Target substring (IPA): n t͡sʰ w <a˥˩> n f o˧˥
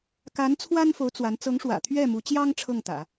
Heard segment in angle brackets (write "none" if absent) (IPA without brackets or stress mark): a˥